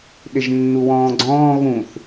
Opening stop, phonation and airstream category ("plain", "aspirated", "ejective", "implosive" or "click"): implosive